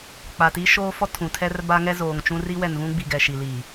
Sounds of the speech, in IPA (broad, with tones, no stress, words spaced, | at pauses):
k͡pa˨ti˦ ʃoː˦fɔ˦ tʰũ˨tʰɛ˦rba˦ŋɛ˦ zoː˨ŋt͡ʃũ˦ ri˦wɛ˨nvũ˦ɡ͡bi˨ ɡɛ˨ʃi˨liː˨